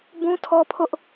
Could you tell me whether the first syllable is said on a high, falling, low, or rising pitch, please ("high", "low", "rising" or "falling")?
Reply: high